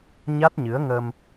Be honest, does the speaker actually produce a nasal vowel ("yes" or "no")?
no